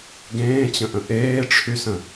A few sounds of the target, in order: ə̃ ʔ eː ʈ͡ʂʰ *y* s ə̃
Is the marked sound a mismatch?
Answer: no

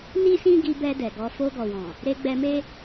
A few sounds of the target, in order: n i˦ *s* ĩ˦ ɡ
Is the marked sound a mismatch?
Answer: no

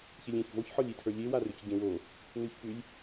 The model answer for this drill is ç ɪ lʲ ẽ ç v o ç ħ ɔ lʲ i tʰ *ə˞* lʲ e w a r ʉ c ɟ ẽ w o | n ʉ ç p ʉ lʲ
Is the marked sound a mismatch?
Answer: no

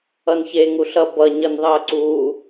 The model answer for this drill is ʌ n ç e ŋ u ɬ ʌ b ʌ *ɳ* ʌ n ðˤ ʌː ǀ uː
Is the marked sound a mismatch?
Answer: yes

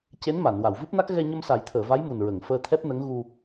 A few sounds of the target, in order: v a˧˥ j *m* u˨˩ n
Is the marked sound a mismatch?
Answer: no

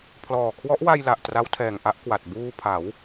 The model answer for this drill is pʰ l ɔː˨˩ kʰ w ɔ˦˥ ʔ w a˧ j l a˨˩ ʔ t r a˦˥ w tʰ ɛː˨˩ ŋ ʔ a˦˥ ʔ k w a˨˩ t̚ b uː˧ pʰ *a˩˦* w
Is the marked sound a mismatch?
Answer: no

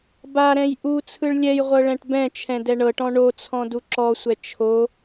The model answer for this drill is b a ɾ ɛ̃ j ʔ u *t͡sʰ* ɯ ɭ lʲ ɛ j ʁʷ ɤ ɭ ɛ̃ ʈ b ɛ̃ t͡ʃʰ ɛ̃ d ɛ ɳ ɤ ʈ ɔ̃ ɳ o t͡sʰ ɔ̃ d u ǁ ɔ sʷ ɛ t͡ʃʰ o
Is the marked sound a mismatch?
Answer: no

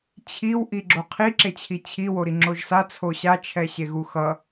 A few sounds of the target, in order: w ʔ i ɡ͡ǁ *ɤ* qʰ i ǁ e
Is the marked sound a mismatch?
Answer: yes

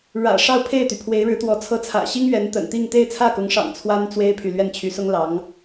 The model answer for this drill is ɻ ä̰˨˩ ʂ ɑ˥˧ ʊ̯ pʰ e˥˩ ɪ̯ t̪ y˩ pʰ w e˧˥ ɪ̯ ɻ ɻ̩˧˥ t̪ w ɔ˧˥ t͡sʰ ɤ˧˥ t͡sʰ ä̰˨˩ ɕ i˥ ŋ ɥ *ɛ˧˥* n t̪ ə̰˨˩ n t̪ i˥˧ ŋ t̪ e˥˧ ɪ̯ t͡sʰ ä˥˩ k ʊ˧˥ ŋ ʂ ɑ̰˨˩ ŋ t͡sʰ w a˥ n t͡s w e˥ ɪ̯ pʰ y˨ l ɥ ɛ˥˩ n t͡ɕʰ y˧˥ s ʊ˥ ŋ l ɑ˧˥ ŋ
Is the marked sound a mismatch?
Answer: no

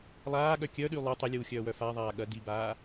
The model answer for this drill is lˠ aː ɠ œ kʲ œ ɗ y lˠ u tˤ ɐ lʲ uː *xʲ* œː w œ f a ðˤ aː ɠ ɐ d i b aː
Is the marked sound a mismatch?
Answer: no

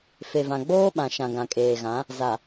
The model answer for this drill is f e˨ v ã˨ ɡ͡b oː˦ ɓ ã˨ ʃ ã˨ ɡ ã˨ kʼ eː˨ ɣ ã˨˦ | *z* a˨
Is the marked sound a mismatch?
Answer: no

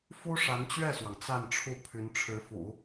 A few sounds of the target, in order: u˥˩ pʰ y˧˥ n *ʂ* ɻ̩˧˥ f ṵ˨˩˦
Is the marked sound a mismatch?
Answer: yes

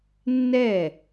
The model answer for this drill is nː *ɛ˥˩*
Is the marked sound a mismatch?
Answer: no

